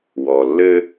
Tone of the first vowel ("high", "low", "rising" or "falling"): low